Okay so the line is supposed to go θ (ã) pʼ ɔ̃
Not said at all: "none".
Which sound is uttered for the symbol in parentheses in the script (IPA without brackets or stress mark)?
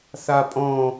a